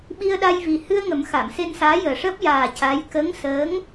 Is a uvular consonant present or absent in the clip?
absent